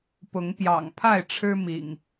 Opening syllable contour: rising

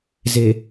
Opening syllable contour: low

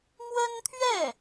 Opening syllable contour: high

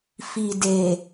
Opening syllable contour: low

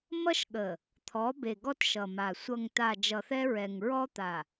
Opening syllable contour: high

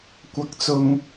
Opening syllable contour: rising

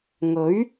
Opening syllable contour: rising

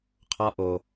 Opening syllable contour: high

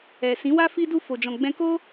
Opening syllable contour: low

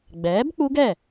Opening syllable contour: rising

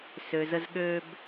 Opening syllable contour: low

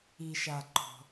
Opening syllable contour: low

